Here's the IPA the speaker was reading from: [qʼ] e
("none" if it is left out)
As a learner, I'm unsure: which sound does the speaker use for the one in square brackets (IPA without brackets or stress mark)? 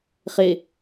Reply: χ